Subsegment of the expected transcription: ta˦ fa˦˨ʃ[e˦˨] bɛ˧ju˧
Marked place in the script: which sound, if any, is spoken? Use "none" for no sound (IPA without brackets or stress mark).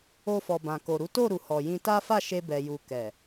e˧